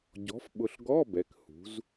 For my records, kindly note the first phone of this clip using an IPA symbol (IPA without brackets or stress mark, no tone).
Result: ɟ